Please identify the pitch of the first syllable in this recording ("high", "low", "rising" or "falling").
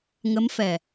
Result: rising